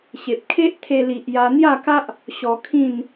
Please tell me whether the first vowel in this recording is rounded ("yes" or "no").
no